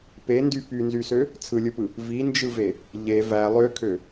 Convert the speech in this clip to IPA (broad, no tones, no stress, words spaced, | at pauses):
pendy pynzysø | t͡sʰɯlʲɯpɯ | vind͡ʒɯve | ʎe væ lˠøkʰø